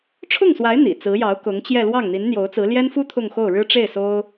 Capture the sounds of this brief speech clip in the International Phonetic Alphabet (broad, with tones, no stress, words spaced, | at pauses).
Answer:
ʈ͡ʂʰʊ˥˩ŋswa˧˥ɪ̯ n̪ḭ˨˩ t͡sɹ̩˧˥jɑ˧˥ʊ̯ kʊ˧˥ŋt͡ɕjɛ˥˧ lwɑ˥˩ŋn̪i˧˥nn̪jo˧˥ʊ̯t͡sɹ̩˧˥ ljɛ˥nfu˥ t̪ʰʊ˥˧ŋxo˥˩ʊ̯ɻɻ̩˥ ʈ͡ʂe˥˩ɪ̯so˥ʊ̯